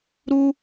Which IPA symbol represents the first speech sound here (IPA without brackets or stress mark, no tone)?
ɾ